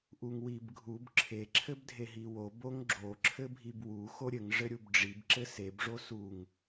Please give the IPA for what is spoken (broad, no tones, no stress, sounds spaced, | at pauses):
ʔ u ŋ w i b ɡʱ u b ǁʰ e ǁʰ ɘ b dʱ e ɦ i w o b o ŋ ɡ͡ǁ o ǁʰ ɘ bʱ i b w u x o ɾʲ ɘ ŋ ʐ ɘ ɾʲ u b ɖ͡ʐ i b ǁ ɘ s e b ʐ o s u ŋ